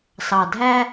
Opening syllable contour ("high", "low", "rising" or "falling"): low